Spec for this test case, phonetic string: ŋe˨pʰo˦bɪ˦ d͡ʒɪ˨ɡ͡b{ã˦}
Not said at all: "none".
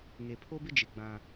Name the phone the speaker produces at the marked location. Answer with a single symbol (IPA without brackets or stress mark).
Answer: ã˦